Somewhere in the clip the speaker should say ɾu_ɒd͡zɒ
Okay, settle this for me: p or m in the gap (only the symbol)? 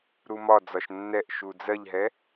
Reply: m